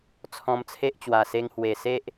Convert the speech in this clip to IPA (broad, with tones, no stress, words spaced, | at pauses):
t͡sʰɔ̃˧mt͡sʰe˦ʔ t͡ɕwa˨˩se˧ŋhwe˨˩se˦ʔ